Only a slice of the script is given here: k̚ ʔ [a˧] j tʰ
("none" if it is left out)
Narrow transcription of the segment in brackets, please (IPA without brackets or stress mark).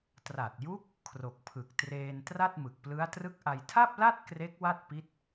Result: a˧